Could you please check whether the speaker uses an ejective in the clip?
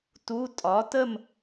yes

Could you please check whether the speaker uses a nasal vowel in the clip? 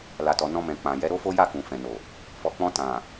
yes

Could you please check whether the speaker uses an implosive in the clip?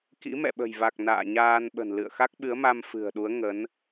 yes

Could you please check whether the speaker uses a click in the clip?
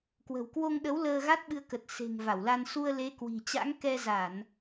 no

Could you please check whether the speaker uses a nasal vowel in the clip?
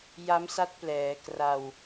no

